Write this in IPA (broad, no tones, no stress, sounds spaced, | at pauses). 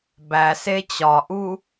b æ s e t͡ɕ ɒ ʔ u